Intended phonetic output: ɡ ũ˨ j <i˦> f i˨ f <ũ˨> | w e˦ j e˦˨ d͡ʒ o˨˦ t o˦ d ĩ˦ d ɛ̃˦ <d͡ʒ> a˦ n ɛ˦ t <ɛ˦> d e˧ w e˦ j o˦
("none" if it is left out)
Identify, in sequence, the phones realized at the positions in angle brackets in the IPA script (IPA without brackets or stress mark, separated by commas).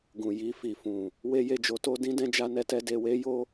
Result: i˧, ũ˨, d͡ʒ, ɛ˦